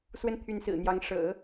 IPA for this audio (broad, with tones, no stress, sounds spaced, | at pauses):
s w ə˥˩ n t̪ʰ y˧˥ n s ɹ̩˨˩ n̪ j ɑ˧˥ ŋ ʂ ɤ̰˨˩˦